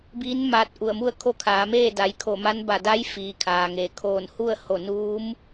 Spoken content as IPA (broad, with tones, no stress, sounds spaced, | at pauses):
b iː˧˥ n m aː˧ t̚ ʔ u˧˩ ə̯ m u˥˨ ə̯ kʰ o˥˨ kʰ aː˩˧ m eː˥˨ d a˩˧ j kʰ o˧˩ m a˧˥ n b a˧˩ d a˧˥ j f iː˩ kʰ aː˩ ŋ eː˩ kʰ oː˧˩ n h u˥˨ ə̯ h o˧˩ n uː˧˥ m